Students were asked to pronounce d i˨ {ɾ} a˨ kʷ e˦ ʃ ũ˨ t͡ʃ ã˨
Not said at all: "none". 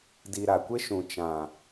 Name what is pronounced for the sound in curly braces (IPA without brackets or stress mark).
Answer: ɾ